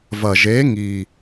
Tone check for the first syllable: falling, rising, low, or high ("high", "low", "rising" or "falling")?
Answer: low